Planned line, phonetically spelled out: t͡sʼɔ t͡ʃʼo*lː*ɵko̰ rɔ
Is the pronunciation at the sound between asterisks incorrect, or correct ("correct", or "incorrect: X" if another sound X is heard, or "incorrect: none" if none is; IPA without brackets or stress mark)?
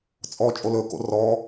incorrect: l